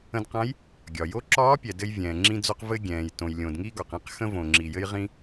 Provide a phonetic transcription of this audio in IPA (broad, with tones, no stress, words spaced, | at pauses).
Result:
ə̃˧dqã˧˥j | ɡʲɒ˩ jo˧˥ǁɒː˧˥pʲɛ˩ dɘ˧jvʲɛ̃ː˩ŋ͡ǁĩ˧d͡zo˧q vɘ˧ɡʲɛ̃ː˩j tõ˩jlʲõ˩dŋi˧ ɡɒ˩qĩ˧q xə̃˧võ˩ŋ͡ǁi˩jɘ˧j ʁĩ˧